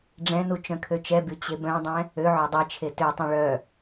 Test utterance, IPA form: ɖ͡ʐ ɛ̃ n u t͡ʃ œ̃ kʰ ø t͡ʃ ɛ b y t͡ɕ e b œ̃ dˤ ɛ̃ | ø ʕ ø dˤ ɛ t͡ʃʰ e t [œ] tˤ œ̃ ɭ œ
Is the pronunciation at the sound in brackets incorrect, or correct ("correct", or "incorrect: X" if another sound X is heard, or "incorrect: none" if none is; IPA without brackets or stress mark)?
incorrect: ø